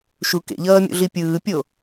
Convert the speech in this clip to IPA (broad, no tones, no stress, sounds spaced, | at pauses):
ʃ u k ḛ ʎ ʌː mʲ ṵ ɮ i pʲ ɯː pʲ o